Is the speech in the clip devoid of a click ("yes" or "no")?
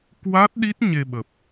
yes